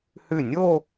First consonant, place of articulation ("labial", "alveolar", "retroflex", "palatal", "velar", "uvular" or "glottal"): glottal